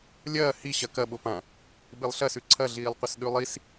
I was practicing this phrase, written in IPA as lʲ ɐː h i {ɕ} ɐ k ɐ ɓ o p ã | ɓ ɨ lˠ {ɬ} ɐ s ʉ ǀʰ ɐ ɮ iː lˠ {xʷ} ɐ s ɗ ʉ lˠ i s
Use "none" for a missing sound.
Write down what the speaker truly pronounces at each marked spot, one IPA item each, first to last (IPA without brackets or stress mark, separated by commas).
ɕ, ɬ, qʷ